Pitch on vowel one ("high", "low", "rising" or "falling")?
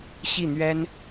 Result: falling